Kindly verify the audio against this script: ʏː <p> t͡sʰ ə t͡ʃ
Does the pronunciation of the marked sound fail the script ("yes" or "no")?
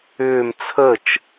yes